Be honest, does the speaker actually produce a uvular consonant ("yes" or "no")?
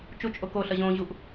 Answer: no